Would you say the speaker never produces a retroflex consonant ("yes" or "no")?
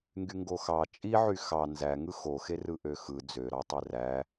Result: yes